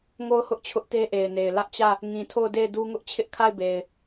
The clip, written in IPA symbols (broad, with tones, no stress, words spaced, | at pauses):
ŋo˦˨ʊ̯hʊ˦ʔ t͡ɕʰʊ˦ʔte˦ʔe˨ɪ̯ne˨ɪ̯ lä˦ʔt͡ɕä˦˨ | ŋĩ˨tʰo˦˨ʊ̯de˦˨ɪ̯du˦ ŋʊ˦ʔt͡ɕʰɪ˦ʔkʰa˦˨ɪ̯be˨ɪ̯